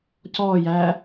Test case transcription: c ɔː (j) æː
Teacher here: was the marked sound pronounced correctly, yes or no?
yes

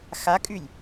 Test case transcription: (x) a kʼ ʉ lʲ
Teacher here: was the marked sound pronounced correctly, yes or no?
yes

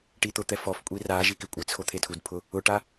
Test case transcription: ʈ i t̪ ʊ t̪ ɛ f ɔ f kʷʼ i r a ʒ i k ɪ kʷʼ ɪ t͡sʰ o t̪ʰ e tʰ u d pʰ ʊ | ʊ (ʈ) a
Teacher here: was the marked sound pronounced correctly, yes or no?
yes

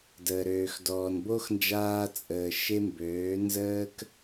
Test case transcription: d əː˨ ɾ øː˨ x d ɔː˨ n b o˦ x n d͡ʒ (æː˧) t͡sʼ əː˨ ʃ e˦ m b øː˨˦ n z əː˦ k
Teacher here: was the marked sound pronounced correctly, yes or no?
no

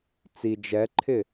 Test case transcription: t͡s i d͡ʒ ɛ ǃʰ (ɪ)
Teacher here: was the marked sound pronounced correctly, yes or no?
yes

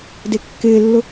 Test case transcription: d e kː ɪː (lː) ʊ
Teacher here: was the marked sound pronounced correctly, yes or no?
yes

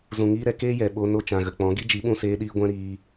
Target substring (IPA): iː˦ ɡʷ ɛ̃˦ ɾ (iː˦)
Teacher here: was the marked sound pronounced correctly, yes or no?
no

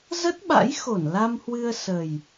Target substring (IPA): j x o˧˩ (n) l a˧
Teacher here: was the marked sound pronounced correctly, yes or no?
yes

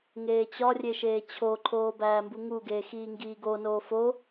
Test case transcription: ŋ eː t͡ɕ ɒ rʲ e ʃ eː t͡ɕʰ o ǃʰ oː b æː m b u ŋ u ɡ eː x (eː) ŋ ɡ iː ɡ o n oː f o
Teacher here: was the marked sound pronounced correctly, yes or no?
no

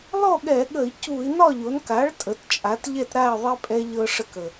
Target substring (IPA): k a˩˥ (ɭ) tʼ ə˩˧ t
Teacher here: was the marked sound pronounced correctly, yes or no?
yes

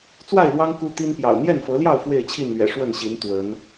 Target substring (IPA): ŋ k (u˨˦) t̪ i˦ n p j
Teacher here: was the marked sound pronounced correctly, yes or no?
no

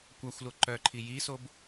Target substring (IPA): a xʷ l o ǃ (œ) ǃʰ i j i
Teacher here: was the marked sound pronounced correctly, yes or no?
yes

